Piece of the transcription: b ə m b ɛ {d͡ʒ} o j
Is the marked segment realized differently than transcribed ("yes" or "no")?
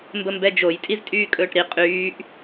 no